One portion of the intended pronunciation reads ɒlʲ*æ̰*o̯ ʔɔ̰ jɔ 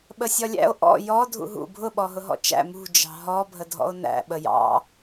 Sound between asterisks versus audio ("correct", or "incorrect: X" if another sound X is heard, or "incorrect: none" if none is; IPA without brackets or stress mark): correct